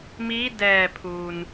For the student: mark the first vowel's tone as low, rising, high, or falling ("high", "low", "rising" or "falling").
rising